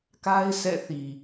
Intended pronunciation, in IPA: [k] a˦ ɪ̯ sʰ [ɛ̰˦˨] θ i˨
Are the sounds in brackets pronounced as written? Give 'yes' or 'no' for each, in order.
yes, yes

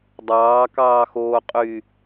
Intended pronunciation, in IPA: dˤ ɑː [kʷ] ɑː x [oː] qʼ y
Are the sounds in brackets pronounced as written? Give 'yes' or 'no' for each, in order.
no, yes

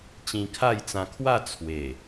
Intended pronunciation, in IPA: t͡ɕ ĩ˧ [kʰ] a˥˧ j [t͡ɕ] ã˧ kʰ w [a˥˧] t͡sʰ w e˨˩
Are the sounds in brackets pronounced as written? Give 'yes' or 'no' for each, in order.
yes, no, yes

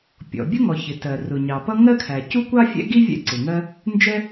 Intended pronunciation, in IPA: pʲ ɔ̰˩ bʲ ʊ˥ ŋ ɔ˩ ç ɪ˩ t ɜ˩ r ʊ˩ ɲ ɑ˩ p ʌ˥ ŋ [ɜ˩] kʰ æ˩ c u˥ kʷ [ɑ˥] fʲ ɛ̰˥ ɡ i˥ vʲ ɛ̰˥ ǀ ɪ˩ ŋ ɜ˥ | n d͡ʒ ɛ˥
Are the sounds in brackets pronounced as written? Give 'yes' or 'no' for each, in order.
no, yes

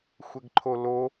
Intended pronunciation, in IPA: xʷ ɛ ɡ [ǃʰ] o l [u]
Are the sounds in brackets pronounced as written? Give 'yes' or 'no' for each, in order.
yes, no

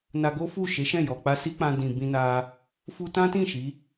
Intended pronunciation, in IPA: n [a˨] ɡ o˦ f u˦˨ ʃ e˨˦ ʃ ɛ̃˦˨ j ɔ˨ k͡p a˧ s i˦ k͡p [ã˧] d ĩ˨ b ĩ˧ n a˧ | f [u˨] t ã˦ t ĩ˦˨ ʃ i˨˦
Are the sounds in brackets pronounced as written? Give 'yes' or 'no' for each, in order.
no, yes, no

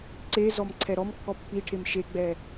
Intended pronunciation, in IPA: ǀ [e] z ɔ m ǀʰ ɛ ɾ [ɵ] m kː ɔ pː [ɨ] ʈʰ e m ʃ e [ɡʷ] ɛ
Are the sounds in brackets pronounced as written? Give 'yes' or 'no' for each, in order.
yes, no, no, no

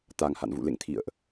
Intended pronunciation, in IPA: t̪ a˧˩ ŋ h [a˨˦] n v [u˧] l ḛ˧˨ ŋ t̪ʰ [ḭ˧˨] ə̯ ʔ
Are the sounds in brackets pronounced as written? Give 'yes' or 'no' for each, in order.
no, no, yes

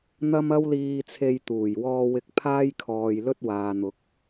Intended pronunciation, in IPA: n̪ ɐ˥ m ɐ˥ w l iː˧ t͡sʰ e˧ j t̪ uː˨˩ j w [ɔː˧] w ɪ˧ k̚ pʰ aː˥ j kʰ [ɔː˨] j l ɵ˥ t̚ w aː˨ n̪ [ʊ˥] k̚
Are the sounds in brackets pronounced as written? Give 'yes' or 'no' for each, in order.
yes, yes, no

